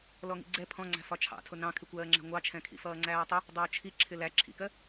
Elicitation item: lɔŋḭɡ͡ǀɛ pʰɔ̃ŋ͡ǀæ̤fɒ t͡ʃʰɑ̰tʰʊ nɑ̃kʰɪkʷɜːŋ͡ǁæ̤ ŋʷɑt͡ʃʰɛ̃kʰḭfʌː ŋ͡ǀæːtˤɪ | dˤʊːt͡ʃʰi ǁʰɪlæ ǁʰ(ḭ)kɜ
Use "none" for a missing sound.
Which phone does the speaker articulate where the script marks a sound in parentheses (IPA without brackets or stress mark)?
ḭ